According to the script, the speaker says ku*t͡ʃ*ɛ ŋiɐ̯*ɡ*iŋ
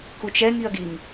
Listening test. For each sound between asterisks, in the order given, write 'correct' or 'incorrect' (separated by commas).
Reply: correct, correct